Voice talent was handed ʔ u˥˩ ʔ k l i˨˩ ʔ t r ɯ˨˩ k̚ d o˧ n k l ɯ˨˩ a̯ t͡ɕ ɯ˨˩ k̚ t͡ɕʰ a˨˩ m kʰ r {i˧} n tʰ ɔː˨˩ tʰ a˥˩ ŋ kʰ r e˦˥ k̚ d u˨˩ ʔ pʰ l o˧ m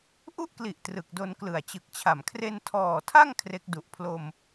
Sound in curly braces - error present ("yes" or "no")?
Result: yes